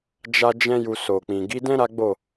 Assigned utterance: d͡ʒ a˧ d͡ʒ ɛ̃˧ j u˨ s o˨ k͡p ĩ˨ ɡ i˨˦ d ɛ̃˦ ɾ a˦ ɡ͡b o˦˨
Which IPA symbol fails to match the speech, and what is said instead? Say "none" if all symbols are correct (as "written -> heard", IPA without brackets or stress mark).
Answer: none